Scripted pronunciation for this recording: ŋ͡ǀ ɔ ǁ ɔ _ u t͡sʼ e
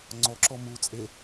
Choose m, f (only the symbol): m